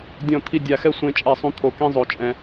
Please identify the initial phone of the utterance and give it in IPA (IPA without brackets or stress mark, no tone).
dʲ